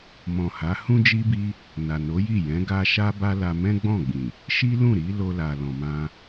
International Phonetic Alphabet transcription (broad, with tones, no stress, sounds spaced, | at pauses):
m ɔ̃˨ h a˨˦ h ũ˦ d͡ʒ i˦ b i˦ | n a˨ n o˨˦ j i˦˨ j ɛ̃˨˦ ɡ a˧ ʃ a˦ b a˦ l a˧ m ɛ̃˦ ɡ͡b ɔ̃˦˨ ɡ͡b ĩ˨ | ʃ i˦ l ũ˦˨ ɾ i˨˦ l o˧ l a˨ l ɔ̃˨ m ã˧